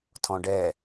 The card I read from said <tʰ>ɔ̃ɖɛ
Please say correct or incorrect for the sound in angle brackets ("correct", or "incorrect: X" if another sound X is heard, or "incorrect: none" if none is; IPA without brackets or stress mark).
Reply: correct